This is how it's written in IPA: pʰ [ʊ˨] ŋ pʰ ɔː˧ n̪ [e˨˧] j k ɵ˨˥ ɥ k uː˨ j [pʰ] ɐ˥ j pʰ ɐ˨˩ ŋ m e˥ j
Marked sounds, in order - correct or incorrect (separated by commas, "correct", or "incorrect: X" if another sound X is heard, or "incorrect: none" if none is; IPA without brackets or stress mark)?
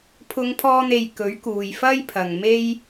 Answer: incorrect: ʊ˧, incorrect: e˨, incorrect: f